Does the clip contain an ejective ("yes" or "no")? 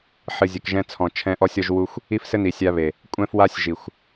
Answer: yes